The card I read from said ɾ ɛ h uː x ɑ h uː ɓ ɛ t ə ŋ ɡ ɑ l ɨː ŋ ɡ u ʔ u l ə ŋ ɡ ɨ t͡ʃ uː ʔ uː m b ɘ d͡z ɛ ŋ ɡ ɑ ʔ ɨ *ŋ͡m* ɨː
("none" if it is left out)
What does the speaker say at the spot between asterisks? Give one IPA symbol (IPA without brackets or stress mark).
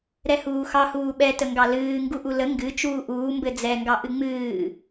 ŋ͡m